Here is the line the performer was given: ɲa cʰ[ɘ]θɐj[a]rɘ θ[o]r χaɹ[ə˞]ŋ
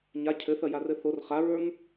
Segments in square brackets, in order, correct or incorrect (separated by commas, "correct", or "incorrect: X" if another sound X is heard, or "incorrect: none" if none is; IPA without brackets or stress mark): correct, correct, correct, correct